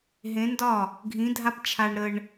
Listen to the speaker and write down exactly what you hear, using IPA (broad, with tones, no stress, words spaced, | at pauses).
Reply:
ɦẽ˧˥ndɒ˥˩ | ɡʱĩ˧˥dʱa˥p t͡ʃʰa˧ɳ ɾə˧ɳ